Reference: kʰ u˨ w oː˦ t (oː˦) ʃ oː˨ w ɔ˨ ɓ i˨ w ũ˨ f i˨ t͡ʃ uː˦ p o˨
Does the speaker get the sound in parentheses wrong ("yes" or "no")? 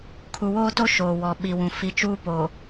yes